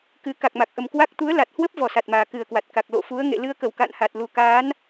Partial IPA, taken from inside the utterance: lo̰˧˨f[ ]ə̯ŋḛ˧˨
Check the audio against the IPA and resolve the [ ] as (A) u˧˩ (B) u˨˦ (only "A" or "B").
B